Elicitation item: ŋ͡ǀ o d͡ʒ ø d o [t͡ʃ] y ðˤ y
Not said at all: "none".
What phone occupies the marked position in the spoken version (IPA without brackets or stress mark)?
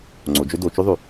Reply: t͡ʃ